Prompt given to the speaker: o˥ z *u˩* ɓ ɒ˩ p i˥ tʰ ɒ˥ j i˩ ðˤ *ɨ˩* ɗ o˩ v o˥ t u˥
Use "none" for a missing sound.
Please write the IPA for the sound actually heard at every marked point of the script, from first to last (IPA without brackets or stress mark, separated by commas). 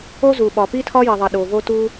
u˩, i˩